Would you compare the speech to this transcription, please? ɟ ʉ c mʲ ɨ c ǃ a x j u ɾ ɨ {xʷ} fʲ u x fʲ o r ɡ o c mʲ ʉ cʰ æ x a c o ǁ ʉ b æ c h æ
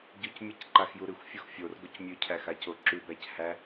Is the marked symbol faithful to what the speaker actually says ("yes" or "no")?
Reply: yes